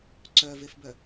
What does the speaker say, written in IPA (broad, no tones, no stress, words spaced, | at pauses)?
ǀœvefbœ